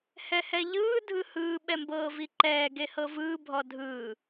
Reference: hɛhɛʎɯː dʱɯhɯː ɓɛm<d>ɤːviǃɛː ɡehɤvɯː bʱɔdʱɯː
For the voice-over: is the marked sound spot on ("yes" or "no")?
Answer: no